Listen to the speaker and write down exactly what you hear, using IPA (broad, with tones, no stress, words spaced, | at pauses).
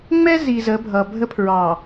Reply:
ŋ͡mɛ˦ zi˨ zə˨˦bʱʌ˨ bʱə˦pʰɹɑ˨